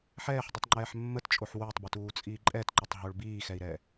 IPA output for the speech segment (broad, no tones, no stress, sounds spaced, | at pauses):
ħ ɛː ħ dˤ ə tˤ ŋ͡ǃ ɛː ħ mː ə t t͡ʃʼ o ħ w o tˤ b ʏ t uː t͡sʼ iː ǃʼ ɛ t ǃ ʏ tˤ ɦ o ɭ b iː x ɛ i̯ ɾ ɛː